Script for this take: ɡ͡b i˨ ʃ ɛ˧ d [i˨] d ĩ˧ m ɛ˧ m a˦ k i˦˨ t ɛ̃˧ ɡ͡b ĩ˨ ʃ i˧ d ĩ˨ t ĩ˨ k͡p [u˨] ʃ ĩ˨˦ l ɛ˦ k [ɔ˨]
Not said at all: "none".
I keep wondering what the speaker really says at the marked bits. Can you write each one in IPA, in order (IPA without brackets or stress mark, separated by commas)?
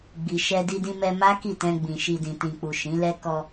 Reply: i˧, u˨, ɔ˧